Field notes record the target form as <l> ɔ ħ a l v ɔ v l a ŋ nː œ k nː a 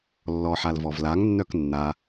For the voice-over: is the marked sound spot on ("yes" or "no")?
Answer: no